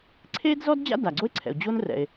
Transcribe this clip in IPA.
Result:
ǀʰ eː˥ d z ɔ˥ d d͡ʑ a̰˥ d aː˩ ɡ͡ǀ o˥ e̯ ǀʰ ɛ̰˩ o̯ d͡ʑ o˥ n r ɛ̰˩ e̯

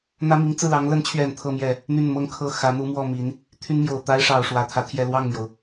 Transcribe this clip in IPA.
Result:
n̪ ä˥ m i˧˥ ŋ t͡s ɹ̩˥˩ l ɑ˧˥ ŋ l ə˧˥ n t͡ɕʰ ɥ ɛ˨˩ n t̪ʰ ɤ˥˧ m j ɛ˥˩ | n̪ y˥˩ n m ɤ˥ ŋ kʰ ɤ˥˩ x ä˧˥ n̪ u˧˥ m w ɔ˥˩ m i˧˥ n | t̪ʰ y˥ n m j o˨˩ ʊ̯ t̪ a˥ ɪ̯ ʂ ɑ˨˩ ʊ̯ ʂ w ä˧˥ t̪ʰ ä˧˥ t̪ʰ j ɛ˥˧ l w ɑ˥˩ ŋ m j o˩ ʊ̯

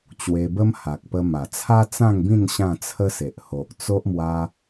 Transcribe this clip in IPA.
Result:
t͡ɕ w e˧ b ə˦ m h a˨ k̚ p ə˧ m a˨˩ t͡sʰ a˦ t͡s ã˥˧ ŋ b ĩ˥˧ n ɕ ã˥˧ t͡sʰ ə˦ s e˨ ʔ h o˨ ʔ t͡s o˦ ʔ m w a˦

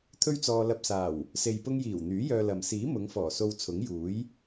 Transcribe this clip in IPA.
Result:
t̪ʰ ɵ˥ ɥ t͡s ɔː˧ l ɐ˧ p̚ s aː˨˩ w | s e˨ j p ʊ˧ ŋ j iː˨˩ w n̪ yː˨˥ j œː˧ l ɐ˨ m s iː˨˥ m ʊ˨˧ ŋ f ɔː˨˩ s o˧ w t͡sʰ ʊ˨˥ ŋ j uː˨˥ j

